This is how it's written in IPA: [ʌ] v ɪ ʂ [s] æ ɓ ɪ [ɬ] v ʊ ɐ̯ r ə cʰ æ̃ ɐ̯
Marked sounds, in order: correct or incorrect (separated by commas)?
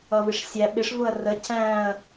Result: correct, incorrect, incorrect